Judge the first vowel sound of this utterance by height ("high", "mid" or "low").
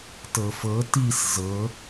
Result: mid